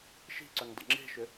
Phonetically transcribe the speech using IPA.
ʃ i̤ ǀ ʏ ŋ dˤ ɛ̰ ŋ͡ǁ e̤ ʃ ʏ

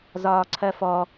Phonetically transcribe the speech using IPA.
z ɒː ǀʰ ɜ f ɔ

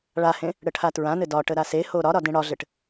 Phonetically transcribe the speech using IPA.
ɭ a h ẽ | ɽ ə ʈʰ a t ɹ ã n ɘ d ɒ ʈ ə ɾ a s e h o ɾ ɒ ɾ ɒ d ẽ ɽ ɒ ɮ ɘ ʈ

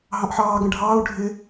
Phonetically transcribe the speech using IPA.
ɦ ɑ̃ ʔ ħ ɑː ɡ ə̃ ɖʱ ɑː u̯ ɖʱ ɪ

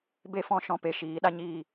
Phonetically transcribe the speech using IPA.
b e˦ f ɔ̃˧ ʃ ɔ̃˧ p e˨ ʃ iː˨˦ ɗ a˦ ɲ iː˦˨

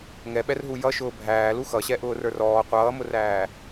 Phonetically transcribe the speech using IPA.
ŋ ɛ ɓ ɛ r ɦ u j ʌ ʃ ʊː bʱ æː l u x ʌ ɕ ɛ ʔ ʊː r ə˞ r ɔː qʷ ʌː m ʊ r æː

